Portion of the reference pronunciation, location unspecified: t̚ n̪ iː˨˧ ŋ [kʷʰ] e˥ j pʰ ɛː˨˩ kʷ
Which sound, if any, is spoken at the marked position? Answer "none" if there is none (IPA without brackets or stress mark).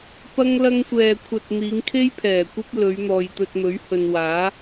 kʰ